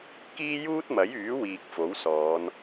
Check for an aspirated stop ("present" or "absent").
absent